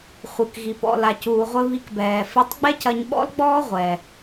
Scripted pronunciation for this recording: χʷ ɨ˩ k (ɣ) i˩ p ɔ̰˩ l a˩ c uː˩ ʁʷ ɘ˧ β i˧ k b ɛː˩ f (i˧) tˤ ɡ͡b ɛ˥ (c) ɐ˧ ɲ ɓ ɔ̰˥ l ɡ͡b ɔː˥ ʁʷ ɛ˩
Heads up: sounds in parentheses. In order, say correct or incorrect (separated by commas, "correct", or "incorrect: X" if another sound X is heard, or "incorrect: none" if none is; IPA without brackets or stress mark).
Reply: correct, correct, correct